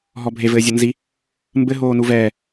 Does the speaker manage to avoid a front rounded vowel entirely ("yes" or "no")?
yes